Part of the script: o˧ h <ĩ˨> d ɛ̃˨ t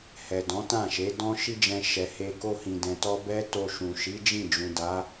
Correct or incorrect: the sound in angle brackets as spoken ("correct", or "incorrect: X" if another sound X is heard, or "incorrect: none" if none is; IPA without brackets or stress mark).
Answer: correct